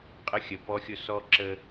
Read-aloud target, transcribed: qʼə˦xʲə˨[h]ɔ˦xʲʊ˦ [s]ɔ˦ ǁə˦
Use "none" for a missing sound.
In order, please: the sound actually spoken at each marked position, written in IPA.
p, s

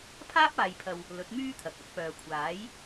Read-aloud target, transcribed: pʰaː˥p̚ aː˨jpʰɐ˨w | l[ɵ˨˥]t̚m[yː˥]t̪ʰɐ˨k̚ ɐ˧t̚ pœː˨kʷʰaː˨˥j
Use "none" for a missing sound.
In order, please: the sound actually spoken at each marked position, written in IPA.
ɵ˨˥, yː˥

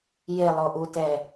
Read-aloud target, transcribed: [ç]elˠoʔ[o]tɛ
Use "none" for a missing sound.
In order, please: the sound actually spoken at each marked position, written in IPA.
j, u

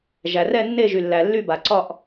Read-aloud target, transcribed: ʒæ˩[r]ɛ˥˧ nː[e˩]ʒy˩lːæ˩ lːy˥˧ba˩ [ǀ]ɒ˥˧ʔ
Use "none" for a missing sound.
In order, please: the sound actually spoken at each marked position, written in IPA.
r, e˥˧, ǀ

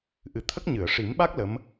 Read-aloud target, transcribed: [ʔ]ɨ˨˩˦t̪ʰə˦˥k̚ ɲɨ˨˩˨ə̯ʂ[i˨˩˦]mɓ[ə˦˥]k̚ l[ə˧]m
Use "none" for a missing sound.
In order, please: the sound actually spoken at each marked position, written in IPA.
ʔ, i˨˩˦, a˦˥, ə˧˥

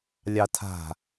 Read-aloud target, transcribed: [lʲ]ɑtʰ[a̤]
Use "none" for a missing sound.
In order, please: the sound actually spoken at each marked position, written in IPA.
lʲ, a̤

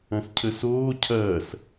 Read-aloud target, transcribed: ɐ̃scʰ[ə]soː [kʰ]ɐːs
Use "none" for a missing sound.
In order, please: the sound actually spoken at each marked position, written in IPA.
ə, cʰ

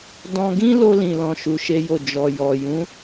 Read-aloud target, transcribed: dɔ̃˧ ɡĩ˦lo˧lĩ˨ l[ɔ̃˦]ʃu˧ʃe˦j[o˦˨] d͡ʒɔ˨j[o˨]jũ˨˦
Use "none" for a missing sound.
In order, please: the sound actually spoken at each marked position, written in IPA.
ɔ̃˧, o˦˨, ɔ˨

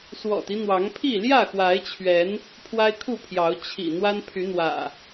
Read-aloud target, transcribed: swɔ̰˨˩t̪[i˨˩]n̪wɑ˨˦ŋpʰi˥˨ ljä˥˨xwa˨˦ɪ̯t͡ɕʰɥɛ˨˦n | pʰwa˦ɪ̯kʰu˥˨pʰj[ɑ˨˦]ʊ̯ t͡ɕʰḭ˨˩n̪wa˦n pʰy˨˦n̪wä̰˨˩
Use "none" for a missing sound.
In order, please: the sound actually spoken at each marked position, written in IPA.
i˦, ɑ˨˦

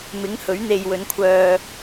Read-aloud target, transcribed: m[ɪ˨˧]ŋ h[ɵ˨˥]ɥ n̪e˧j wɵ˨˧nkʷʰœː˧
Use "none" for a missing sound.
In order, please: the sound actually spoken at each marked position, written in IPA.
ɪ˨˥, ɵ˨˥

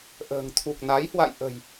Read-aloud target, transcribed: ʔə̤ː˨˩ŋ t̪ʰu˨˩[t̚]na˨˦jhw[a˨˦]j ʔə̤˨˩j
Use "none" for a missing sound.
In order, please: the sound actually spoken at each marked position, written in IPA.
k̚, a̰˧˨

